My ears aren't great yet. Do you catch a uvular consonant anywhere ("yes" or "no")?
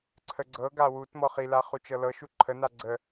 yes